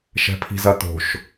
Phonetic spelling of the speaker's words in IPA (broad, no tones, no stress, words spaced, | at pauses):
ʃɛ̤pʰi̤zɐt̪o̤ʃ